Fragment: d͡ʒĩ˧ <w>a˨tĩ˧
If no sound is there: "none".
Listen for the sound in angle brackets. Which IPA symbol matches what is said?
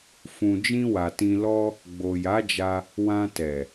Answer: w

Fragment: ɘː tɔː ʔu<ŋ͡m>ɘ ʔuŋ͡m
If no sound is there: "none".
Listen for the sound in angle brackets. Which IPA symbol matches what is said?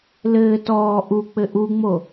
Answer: k͡p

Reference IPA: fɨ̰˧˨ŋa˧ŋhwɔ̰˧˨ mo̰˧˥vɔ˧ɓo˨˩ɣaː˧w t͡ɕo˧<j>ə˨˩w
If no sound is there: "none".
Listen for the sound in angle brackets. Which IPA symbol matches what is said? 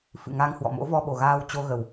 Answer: ɣ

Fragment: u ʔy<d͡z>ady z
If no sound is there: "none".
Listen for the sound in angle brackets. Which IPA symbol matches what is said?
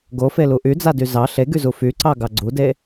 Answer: d͡z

